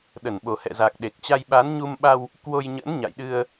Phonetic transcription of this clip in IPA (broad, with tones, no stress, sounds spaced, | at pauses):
ɗ ə˧˩ n ɓ o˨˩ h ɛ̰˧˨ z a˨˩ k̚ ɗ e˨˩ k̚ t͡ɕ a˧ j ɓ a˨˦ n ɲ u˧ m ɓ a˧ w | k w o˧ j ɲ ə̰˧˥ n ɲ a̰˧˨ j ɗ ɨ˧ ə̯